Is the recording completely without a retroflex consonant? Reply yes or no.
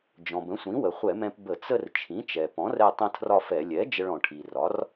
no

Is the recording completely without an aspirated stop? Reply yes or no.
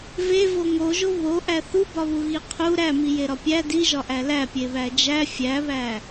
no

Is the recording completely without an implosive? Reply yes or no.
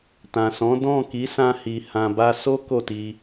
yes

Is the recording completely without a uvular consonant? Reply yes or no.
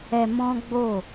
yes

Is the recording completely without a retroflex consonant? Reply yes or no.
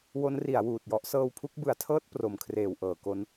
yes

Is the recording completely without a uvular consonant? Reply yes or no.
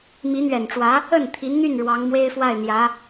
yes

